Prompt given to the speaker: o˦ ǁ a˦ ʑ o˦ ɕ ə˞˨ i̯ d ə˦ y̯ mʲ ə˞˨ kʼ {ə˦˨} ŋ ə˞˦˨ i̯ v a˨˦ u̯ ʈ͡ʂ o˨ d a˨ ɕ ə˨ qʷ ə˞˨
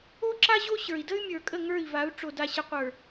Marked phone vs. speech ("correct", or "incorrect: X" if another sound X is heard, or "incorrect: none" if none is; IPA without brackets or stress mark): correct